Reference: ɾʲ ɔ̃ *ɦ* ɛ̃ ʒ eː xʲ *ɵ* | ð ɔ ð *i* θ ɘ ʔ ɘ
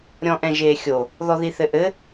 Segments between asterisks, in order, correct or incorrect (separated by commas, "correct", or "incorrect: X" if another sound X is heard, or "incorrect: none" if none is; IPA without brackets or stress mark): incorrect: ʔ, incorrect: o, correct